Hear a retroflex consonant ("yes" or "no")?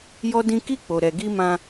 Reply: no